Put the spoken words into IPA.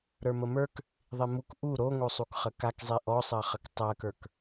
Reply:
ɾ ə˞ m ə m ə˞ k | ðˤ i m u k ʔ u ɾ o ŋ o sˤ u k χ ə k a k zˤ i ʔ ɔ sˤ ɜ χ ə k tˤ ɜ k ə˞ k

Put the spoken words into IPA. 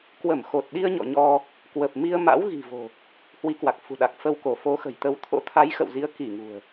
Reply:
k w ə˧˩ m x o˨˩ t̚ ɗ i˧ ə̯ ɲ ɔ̰˧˨ ɲ ɔ˧ | k w ə˨˩ p̚ m i˧ ə̯ m a̰˧˥ w ɣ i̤˨˩ v o̤˨˩ | h w i˨˦ k w a˨˩ k̚ f ṳ˨˩ ɗ a˨˩ k̚ f ə˧ w k o˧˩ f o˨˦ x ə̤˨˩ j t̪ ə˨˦ w t̪ʰ o̰˧˥ t̪ʰ a˨˦ j x ə̰˧˨ w z i˨˦ ə̯ k i˧˩ ŋ ṳ˨˩ ə̯

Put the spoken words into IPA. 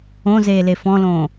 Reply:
õ z eː l e f ɔ̃ l õː

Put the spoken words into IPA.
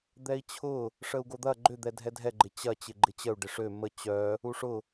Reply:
d̪ ɛ i̯ t͡ɕʰ ʊ | ʂ ə u̯ ɡ o d̪ ɐ ɡ͡ǃ ʏ d̪ ɛ dʱ ɛ dʱ ɛ ɡ͡ǃ ɪ t͡ɕ ɐ t͡ɕ ɪ ɡ͡ǃ ɪ t͡ɕ ə u̯ ɖ ɪ ʂ ø m ə t͡ɕ œ | u ʂ ʊ

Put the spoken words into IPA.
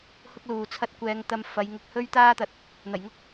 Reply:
h ʊ˥ k̚ l uː˨ t͡sʰ ɐ˥ t̚ kʷ ɛː˧ ŋ t̪ ɐ˧ m f ɐ˨˧ j ŋ ʊ˨ k̚ h ɵ˥ ɥ t̪ aː˥ t̪ ɐ˧ t̚ | n̪ ɐ˨˩ j ŋ ʊ˥ k̚

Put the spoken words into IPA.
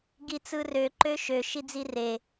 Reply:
ɡ i t͡s ɯ r ø ǃ ø ʃ ø ʃ i d͡z i r e

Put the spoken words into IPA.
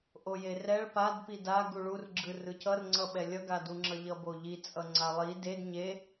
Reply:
ʔ o j e r ɛ ɭ p a d p i d a ɡ u ɭ u r ɡ͡ǁ ɯ r ɯ c ʌ r ŋ͡ǀ ʌ ɓ ɛ lʲ ʌ ɡ a d u ŋ͡ǁ ʌ ʎ ʌ b o ʎ i t͡sʼ ʌ ŋ͡ǀ a lˠ i d e d ɲ e

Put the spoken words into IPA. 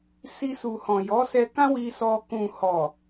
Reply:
s i˧ s u˨ h ɔ̃˨ j ɔ˨˦ s ɛ˧ k ã˦ w i˧ s ɔ˧ k ũ˨ h ɔ˨

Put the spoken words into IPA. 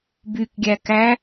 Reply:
b y k ɡʲ æ k æ

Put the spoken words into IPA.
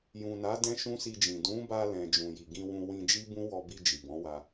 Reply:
j ũ˨ n a˨˦ d ɛ̃˦ ʃ ũ˦ s i˧ d͡ʒ ĩ˨ d ũ˨˦ b a˧ l ɛ̃˨ d͡ʒ ũ˨ j i˨ ɡ ĩ˧ w ũ˧ w ĩ˧ d͡ʒ i˦ b ũ˦ w ɔ˧ b i˧ d͡ʒ i˨ b ɔ̃˨˦ w a˧

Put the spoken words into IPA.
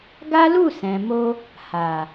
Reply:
ɡ a˦ l u˦˨ s ɛ̃˨ m o˧ | h a˨

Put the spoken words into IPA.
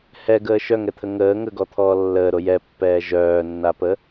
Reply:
h ɛ ɡ əː ʃ œ ŋ ɛ t̪ʰ ə ŋ əː ŋ ə ɡ ɔ t̪ʰ ɔː lː əː ɾ o j ɛ pː ɛː ʒ œː nː a p ə

